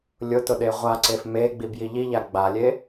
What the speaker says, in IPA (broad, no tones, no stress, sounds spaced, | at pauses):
lʲ ʊ t ʊ ɗ e ʁʷ a ǀ e f m e ɡ͡b i b j i ʎ i ʎ a ɡ͡b a lʲ e